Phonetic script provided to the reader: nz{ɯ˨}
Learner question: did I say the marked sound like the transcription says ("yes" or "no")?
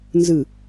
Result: yes